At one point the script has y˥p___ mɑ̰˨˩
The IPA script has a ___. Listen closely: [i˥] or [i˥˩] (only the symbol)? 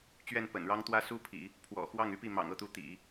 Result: i˥˩